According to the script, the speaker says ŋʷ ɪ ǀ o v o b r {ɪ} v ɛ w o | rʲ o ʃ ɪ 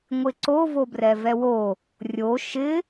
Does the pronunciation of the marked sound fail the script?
yes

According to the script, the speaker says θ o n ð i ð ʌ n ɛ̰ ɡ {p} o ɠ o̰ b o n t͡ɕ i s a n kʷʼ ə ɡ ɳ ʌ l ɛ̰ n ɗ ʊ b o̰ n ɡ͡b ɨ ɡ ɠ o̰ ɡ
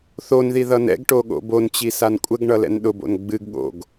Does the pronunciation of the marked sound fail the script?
yes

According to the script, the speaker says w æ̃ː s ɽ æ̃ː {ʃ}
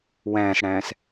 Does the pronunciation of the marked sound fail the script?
yes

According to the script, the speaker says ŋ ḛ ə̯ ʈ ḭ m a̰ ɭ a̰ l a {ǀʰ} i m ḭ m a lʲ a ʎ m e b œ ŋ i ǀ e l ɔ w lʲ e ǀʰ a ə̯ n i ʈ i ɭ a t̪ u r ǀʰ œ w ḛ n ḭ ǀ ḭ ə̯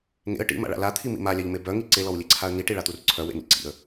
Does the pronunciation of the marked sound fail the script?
yes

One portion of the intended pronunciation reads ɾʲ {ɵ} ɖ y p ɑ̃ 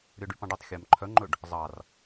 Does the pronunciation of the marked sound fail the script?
yes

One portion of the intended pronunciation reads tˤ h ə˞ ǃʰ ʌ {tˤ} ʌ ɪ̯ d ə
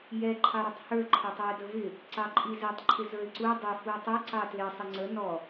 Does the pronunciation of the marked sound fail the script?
no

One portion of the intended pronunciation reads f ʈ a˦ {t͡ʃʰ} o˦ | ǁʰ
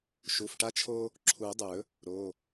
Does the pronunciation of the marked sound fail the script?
no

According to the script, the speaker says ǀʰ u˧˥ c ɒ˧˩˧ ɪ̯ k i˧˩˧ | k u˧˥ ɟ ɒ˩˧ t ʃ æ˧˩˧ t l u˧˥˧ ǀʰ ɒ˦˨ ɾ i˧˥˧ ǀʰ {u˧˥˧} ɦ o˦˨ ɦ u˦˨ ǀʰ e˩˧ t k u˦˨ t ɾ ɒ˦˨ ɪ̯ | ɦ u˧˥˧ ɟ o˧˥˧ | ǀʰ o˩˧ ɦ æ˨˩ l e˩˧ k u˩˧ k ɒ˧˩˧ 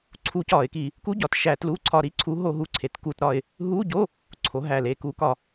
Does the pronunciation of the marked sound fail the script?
yes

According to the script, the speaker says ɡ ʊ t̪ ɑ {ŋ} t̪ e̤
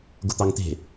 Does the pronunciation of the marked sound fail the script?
no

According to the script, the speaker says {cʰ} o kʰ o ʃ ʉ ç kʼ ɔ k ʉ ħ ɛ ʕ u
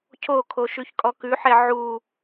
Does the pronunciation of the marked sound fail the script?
no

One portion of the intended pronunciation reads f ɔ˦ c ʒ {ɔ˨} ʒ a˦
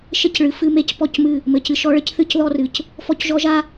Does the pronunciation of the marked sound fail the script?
yes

